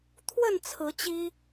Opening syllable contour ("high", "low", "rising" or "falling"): falling